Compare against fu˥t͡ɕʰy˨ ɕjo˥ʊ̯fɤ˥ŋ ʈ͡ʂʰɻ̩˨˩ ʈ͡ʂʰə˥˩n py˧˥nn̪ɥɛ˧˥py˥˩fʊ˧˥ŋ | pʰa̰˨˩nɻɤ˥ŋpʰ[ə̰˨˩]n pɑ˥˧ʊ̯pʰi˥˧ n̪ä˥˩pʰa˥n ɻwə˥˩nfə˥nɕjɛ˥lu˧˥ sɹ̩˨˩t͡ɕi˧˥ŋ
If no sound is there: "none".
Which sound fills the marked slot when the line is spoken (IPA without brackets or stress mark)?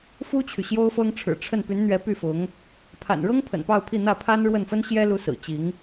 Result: ə̰˨˩